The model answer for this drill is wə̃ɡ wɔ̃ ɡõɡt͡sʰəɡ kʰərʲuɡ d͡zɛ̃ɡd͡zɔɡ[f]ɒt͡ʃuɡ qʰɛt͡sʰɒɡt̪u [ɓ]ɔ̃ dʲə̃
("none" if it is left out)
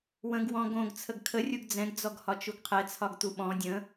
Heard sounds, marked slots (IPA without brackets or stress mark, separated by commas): h, ɓ